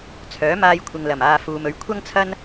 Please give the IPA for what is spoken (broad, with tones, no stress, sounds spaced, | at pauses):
t͡sʰ œː˨˥ m aː˧ j kʷʰ ɪ˨ ŋ l ɐ˨˩ m aː˨ f uː˨ m ɵ˨ ɥ kʷʰ ɐ˥ ŋ t͡sʰ ɐ˥ n